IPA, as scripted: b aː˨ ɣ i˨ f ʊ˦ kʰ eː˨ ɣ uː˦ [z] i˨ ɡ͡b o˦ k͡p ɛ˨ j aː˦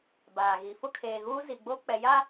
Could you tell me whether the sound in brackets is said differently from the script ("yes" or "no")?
no